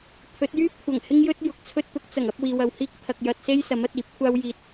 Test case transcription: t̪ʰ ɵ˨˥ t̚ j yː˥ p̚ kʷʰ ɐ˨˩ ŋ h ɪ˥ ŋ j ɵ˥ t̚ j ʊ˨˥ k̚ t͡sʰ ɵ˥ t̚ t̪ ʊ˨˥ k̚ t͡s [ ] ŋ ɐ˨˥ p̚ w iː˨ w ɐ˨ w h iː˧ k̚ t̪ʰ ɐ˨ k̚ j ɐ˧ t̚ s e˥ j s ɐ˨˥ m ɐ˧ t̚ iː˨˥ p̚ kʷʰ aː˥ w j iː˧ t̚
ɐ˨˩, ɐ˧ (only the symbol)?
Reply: ɐ˨˩